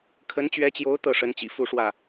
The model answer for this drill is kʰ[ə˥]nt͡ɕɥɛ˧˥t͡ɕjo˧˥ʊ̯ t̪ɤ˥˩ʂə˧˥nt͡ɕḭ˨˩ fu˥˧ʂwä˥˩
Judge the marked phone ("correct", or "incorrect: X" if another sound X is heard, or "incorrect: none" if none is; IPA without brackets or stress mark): incorrect: ə˧˥